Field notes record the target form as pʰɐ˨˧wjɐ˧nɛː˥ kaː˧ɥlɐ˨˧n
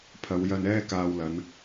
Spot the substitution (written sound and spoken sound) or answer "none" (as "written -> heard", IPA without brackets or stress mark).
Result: ɥ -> w